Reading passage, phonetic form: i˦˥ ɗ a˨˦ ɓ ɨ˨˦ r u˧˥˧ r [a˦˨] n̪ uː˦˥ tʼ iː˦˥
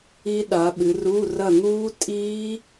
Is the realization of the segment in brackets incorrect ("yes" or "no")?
yes